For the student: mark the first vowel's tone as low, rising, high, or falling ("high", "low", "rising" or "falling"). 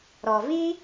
low